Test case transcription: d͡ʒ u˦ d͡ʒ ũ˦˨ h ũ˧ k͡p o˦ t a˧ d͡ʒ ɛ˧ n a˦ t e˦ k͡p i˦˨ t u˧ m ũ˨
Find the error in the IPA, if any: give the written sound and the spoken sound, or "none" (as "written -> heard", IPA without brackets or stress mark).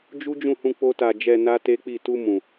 none